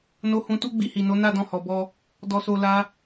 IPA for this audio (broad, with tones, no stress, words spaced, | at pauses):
no˧hũ˧ tu˦ɡ͡bi˧hi˨no˨˦ na˦˨dɔ̃˧hɔ˨bɔ˧ | dɔ˨so˨ la˧